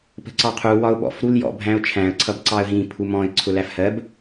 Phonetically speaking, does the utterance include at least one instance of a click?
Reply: yes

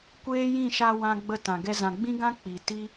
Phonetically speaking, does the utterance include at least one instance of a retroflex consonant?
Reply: no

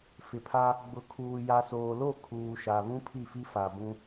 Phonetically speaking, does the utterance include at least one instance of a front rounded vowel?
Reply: no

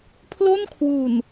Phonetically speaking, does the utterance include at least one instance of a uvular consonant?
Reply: no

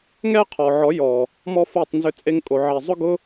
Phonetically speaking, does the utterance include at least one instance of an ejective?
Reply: yes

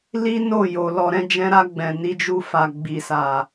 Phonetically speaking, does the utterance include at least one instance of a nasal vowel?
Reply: yes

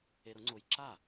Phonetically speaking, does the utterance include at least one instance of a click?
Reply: yes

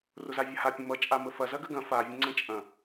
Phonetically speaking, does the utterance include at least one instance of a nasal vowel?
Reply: yes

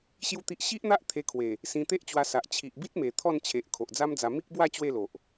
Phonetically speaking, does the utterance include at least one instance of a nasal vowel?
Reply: yes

